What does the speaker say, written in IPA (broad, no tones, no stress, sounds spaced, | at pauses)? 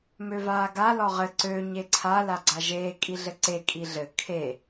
m ø v aː ɡ a l ɔ ʁ ɘ ǀ ø ɲ e ǀʰ a l a ɡ͡ǀ a ʒ eː kʼ i ɮ ɘ ǀ e kʼ i ɮ ɘ kʰ e